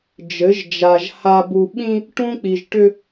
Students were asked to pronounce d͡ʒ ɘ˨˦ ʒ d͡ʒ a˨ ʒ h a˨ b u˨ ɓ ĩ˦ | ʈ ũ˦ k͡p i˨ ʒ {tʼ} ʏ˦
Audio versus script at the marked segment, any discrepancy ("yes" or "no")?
yes